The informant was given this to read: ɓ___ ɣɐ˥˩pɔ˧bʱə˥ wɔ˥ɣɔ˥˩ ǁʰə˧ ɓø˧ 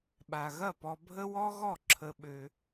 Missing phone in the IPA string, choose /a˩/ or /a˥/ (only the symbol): a˩